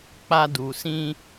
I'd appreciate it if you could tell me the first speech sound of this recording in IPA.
k͡p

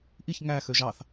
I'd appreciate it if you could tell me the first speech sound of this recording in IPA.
ʔ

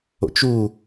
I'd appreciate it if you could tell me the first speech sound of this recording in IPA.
o̰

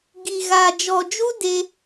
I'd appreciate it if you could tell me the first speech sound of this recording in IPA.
ɡ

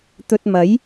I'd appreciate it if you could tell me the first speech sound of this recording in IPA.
t̪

